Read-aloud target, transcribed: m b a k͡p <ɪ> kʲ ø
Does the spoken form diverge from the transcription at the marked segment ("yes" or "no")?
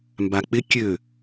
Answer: no